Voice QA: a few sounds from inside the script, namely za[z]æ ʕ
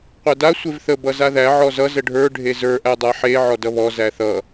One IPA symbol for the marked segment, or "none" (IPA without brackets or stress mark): ð